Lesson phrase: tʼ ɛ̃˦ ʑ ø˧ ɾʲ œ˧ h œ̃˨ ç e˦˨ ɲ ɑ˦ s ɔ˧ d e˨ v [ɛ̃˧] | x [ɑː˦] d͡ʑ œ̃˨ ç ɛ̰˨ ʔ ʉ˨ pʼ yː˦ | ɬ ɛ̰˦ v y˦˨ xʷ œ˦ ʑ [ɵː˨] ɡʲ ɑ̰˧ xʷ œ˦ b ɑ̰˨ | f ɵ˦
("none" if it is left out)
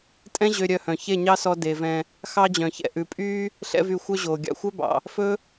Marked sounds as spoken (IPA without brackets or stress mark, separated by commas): ɛ̃˧, ɑ˦, oː˨